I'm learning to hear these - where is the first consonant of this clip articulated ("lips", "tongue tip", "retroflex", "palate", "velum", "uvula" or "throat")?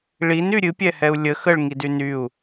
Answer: retroflex